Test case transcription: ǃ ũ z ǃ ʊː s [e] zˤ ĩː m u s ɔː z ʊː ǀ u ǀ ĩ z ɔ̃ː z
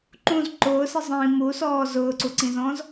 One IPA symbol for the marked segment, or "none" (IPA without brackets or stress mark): i